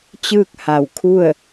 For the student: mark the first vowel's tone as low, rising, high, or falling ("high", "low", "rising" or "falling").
falling